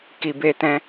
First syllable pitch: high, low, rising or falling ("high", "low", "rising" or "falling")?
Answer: low